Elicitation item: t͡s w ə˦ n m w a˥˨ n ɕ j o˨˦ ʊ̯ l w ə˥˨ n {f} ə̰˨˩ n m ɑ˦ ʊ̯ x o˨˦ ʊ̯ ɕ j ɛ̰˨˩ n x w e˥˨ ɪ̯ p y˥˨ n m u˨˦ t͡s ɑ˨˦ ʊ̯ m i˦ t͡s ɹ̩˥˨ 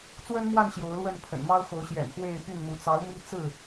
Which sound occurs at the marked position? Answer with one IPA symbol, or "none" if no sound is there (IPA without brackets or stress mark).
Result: pʰ